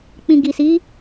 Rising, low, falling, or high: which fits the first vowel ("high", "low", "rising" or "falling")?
low